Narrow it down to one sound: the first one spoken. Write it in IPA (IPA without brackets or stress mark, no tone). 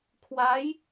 kʰ